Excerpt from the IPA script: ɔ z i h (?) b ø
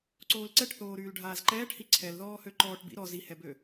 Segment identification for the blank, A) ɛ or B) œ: A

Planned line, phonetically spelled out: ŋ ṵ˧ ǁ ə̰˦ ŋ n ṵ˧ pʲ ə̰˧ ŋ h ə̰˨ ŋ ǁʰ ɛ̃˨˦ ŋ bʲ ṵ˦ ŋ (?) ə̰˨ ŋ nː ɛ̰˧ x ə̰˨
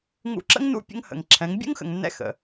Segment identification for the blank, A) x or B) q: A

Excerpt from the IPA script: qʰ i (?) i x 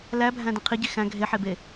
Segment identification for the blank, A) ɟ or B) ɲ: A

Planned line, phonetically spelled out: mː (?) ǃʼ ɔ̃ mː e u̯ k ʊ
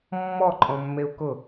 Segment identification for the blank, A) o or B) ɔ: B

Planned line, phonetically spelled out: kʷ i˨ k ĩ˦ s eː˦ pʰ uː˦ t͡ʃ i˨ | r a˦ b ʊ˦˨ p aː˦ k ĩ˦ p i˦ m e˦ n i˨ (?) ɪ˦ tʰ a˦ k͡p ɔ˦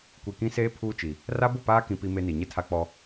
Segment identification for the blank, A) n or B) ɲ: B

